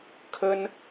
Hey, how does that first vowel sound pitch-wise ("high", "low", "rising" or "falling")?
high